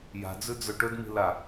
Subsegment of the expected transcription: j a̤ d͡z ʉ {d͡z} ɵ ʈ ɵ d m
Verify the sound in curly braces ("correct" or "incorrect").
correct